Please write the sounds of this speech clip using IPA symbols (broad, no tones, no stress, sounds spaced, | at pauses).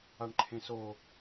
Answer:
a ɳ ǃʰ ẽ s o